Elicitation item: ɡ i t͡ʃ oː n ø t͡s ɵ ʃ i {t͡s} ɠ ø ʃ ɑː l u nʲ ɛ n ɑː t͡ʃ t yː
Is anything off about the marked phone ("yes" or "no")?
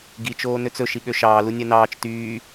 yes